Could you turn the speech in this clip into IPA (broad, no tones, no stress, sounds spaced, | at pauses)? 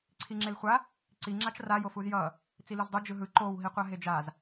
ǀʰ i ŋ͡ǁ e l χʷ a | ǀ i ŋ͡ǁ a t͡ʃ r a j o f u z j ʌ | t͡s i l u z dˤ u d͡ʒ ɯ ɦ ɯ ǃ o w ɦ i qʷ a ɦ e d͡ʒ a z